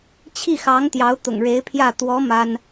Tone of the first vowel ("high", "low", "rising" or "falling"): falling